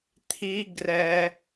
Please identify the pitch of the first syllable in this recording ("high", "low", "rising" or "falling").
high